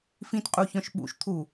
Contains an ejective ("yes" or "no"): yes